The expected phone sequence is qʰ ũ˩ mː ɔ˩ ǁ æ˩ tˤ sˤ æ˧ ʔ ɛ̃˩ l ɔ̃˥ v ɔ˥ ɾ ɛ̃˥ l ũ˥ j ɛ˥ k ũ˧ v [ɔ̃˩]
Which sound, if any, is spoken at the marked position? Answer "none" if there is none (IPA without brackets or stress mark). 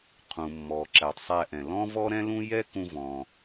ɔ̃˩